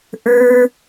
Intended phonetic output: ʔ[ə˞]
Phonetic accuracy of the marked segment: correct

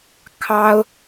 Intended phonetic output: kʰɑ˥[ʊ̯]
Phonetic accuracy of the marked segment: correct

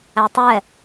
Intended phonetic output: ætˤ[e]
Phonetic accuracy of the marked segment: incorrect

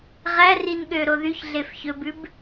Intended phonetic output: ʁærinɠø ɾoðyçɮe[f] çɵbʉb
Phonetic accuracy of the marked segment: correct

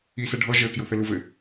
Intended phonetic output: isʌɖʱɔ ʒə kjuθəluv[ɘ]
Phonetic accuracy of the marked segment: correct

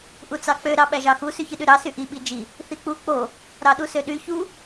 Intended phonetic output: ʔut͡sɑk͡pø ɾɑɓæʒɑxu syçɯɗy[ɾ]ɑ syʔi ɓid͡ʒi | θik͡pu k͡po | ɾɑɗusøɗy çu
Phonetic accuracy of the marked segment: correct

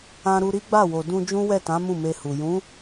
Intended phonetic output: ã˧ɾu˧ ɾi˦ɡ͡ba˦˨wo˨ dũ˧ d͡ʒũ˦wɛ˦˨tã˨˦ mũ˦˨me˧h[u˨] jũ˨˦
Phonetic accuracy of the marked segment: correct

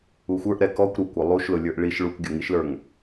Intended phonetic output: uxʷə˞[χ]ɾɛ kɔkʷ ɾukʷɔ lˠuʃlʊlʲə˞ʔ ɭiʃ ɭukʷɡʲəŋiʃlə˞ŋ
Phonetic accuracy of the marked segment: incorrect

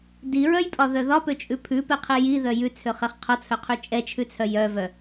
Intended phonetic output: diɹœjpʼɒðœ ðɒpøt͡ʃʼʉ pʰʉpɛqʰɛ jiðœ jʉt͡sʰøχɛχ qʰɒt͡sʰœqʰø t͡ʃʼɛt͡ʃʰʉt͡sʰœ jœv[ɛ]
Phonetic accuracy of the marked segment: incorrect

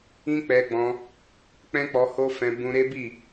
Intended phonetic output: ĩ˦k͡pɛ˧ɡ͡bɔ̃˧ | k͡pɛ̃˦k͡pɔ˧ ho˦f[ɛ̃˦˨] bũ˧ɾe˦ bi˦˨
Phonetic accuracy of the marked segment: incorrect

